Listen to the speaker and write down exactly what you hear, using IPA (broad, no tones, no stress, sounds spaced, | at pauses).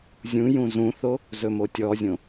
zʲ ũ j ũ z ũ θ o | z ɵ m o tʲ ɔ zʲ õ